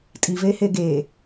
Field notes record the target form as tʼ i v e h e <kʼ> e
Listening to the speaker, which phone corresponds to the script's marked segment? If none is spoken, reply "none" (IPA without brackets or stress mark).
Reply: ɡ